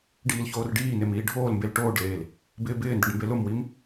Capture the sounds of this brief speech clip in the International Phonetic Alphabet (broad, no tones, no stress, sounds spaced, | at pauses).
ɖ iː l ç oː r ɖ iː n e m iː ɖʱ oː l m b e l ʈ oː ɖ l eː l | b ɪː b ɪː n d ɪ ɖ m b e l ʊ m w i m